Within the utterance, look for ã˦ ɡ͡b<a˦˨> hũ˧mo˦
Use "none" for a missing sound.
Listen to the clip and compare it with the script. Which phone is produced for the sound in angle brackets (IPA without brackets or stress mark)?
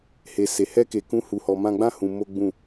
ã˦˨